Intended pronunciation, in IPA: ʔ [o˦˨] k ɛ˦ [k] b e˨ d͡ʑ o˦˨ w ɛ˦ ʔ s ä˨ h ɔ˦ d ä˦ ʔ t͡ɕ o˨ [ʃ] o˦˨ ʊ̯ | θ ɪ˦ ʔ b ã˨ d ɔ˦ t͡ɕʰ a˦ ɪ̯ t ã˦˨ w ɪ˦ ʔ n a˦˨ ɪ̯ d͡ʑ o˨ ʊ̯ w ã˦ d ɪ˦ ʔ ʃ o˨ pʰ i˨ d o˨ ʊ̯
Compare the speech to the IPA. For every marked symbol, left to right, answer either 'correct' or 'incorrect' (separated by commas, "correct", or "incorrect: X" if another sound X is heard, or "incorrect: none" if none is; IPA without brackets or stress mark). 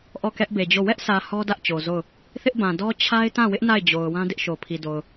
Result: incorrect: ɔ˦˨, incorrect: ʔ, incorrect: z